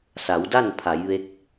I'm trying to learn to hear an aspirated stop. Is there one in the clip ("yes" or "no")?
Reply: yes